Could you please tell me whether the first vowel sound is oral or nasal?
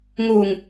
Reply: oral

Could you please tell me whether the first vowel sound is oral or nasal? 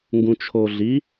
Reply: nasal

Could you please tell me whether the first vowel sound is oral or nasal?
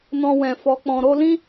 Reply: nasal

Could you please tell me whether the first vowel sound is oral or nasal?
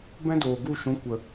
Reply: nasal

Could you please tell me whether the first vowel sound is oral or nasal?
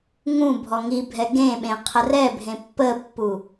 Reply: nasal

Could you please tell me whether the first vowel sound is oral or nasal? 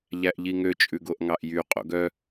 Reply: oral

